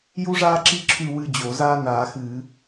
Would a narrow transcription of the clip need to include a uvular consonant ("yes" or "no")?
no